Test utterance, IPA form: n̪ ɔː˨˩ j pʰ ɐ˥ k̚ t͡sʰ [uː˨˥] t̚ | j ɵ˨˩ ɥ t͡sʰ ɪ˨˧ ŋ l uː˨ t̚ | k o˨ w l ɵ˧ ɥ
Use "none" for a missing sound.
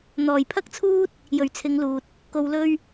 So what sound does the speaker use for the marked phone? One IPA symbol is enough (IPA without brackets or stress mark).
uː˥